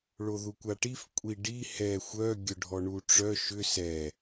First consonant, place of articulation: retroflex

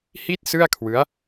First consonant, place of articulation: glottal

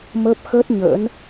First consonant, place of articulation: labial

